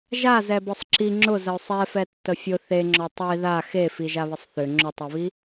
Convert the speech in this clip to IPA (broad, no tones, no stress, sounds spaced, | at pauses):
ʒ a z ɛ b ɔ sˤ ǁ i ŋ͡ǁ ʊ z ə ʊ̯ sˤ ɛ f ɛ tː ə fʲ ʊ θ e ŋ͡ǁ ɔ tˤ i ð a x e f i ʒ a β ə sˤ θ ʏ ŋ͡ǁ ʊ tˤ i β i